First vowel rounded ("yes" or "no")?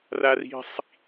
no